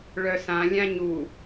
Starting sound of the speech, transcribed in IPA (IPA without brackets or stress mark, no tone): ɭ